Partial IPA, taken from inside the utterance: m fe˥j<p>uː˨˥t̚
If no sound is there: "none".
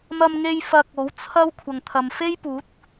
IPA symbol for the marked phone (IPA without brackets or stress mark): p